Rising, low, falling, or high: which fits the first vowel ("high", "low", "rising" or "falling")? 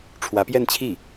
rising